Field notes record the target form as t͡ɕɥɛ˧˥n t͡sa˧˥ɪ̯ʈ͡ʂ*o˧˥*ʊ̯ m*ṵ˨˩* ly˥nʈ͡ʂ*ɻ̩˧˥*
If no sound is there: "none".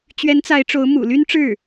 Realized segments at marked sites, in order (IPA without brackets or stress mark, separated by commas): o˧˥, ṵ˨˩, ɻ̩˥˩